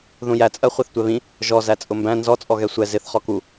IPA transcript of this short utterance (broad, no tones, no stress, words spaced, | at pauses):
ðũjæt͡sʼɜ χʷɛθtʷɛβĩ | ʒɔzæ t͡sʼʊmbæ̃ nzɔt͡sʼɔɣɛ sʷɛ zɪθ χɔku